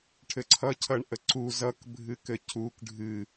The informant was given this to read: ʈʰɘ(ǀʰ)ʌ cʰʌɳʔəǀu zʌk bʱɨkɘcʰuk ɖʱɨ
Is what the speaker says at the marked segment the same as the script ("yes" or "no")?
yes